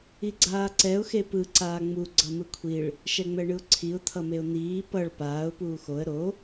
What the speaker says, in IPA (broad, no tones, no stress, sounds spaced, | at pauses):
i ɡ͡ǀ aː ǀ ɛ ʊ̯ x e p ɯ ǀ aː ŋ͡m u ɡ͡ǀ ʌ m ɯ kʷʰ i ɭ | ʃ ɛ ŋ͡m ɛ ɳ ɯ ʊ̯ ǀʰ i ʊ̯ t̪ʰ ʌ m e ʊ̯ n̪ iː p ʌ ɭ p aː ʊ̯ p uː x o ə̯ ɾ o